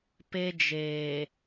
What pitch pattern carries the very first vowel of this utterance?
high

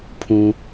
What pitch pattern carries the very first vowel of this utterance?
low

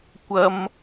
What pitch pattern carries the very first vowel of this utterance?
high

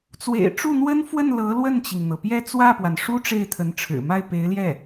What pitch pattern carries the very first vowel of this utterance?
low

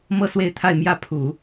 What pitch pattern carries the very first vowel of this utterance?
high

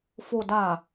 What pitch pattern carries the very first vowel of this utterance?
low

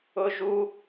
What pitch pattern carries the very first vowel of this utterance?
high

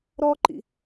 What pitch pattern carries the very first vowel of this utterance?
high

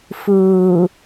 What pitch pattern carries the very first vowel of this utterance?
low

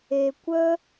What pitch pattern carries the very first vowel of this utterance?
low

